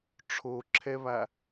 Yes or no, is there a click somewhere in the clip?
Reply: yes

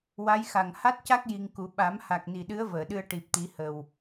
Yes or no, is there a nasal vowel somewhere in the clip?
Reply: no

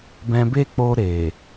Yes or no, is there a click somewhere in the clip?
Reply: no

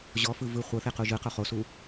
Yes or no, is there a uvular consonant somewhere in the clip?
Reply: yes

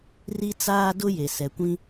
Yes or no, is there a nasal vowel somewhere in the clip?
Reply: yes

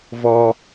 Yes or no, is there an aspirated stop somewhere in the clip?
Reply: no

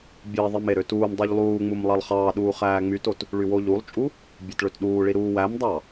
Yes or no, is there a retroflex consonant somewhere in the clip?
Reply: yes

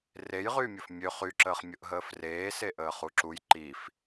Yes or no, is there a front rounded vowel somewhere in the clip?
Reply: yes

